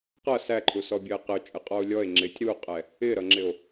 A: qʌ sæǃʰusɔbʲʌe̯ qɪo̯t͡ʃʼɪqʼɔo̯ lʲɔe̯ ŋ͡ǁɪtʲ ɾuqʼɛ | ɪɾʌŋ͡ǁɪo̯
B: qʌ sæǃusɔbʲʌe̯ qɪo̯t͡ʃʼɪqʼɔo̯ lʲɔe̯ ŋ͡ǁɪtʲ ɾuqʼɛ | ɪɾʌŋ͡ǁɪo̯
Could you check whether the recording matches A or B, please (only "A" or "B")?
A